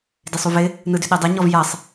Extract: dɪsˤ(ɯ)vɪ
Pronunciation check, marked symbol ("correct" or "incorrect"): incorrect